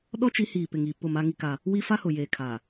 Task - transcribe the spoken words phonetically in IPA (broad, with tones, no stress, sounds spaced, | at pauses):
ɗ ɔ˦ t͡ʃ i˨˦ h iː˨ p ɪ˨ ŋ i˨ p ʊ˦˨ m a˦ ŋ i˦ k a˦ | w i˦ f a˦ h ʊ˨ j eː˨ kʰ a˨